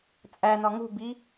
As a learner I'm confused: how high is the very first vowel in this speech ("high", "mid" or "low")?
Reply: low